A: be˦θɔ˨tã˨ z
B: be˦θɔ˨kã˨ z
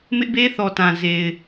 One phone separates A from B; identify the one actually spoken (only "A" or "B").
A